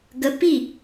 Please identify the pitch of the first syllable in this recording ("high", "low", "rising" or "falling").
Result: rising